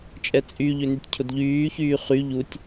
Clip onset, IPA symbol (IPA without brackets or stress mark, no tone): t͡ʃʼ